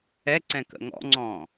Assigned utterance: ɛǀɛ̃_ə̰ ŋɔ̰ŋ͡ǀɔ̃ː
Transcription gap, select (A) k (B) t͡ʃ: A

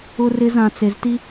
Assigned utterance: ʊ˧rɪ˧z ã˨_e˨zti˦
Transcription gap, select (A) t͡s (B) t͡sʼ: A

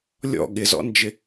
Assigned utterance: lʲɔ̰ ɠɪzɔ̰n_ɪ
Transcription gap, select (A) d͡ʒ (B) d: A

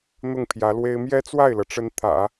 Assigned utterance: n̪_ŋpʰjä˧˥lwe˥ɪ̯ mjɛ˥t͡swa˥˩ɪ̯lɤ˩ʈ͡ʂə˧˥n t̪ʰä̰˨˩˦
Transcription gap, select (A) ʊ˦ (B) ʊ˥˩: B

